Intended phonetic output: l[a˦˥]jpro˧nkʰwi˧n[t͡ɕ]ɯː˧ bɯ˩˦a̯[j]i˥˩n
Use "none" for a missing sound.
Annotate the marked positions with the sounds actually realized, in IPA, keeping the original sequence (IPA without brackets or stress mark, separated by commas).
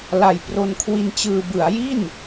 a˨˩, t͡ɕ, j